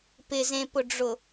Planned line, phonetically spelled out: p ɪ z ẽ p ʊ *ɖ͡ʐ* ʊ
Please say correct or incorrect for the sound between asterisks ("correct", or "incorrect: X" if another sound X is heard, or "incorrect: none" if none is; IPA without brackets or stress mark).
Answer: correct